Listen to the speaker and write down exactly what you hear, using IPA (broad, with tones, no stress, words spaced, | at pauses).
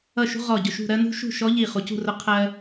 ʌ˧˩ʃṳ˧ ʁɔ˧˩ɟʊ˧˩ ʃṳ˥˨ ɾɜ˥nṳ˥ ʃṳ˥˨ʃɔ˧˥ ʎi˧˩ χu˩cṳ˥˨ rʊ˧ qʰɜ˧